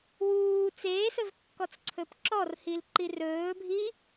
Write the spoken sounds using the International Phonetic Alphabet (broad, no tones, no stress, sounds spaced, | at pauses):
w uː t͡s eː s ɵ v kː ɔ t͡s ǀʰ ɵ p ǁ ɔ r h i l ǃ i r ɵː bʱ i